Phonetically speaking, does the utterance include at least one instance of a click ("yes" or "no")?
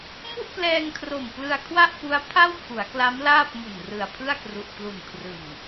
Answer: no